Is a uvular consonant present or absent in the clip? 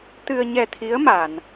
absent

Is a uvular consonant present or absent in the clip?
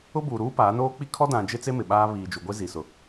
absent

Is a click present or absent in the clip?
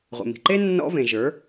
present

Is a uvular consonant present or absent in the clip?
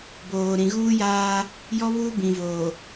absent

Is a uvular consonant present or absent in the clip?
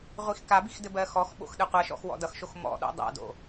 present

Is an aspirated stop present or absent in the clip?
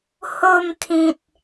present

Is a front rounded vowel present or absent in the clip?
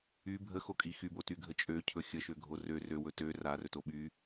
present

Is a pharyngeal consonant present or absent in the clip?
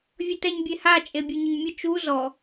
absent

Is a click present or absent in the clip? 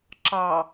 present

